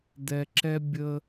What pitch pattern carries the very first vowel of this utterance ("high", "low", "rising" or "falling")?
low